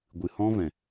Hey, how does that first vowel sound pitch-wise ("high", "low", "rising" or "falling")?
low